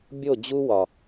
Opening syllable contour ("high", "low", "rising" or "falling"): falling